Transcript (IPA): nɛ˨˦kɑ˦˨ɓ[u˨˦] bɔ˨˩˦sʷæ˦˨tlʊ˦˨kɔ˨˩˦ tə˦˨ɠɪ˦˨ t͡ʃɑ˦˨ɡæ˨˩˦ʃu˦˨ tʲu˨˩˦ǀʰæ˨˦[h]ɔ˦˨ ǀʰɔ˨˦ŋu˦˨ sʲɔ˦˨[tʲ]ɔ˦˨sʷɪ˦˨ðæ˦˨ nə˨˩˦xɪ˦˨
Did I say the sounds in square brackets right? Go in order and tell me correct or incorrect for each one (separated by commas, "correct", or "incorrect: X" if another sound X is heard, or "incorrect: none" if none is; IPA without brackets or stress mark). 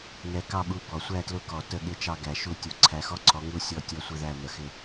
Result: correct, incorrect: x, correct